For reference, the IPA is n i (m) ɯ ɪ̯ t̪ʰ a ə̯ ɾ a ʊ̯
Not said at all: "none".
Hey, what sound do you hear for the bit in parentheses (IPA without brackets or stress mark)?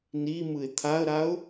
m